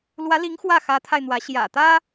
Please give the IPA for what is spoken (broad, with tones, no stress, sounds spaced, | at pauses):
l w ä˧˥ l i˧˥ ŋ x w ä˥˩ x ä˧˥ t̪ʰ a˧ ɪ̯ n̪ w ä˧˥ ɕ j ä̰˨˩ t̪ ä˥